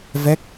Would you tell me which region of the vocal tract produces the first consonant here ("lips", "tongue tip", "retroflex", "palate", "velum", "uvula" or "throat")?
lips